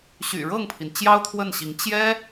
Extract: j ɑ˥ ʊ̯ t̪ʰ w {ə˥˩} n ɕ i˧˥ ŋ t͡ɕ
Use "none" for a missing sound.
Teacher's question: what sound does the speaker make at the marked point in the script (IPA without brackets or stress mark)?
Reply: ə˥˩